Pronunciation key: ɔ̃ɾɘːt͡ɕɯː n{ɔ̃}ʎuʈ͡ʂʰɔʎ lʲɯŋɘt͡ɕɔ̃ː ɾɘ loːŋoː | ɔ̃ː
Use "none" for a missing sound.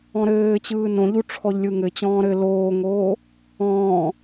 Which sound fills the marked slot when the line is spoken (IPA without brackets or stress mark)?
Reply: õ